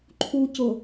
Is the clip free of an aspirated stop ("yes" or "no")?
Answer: no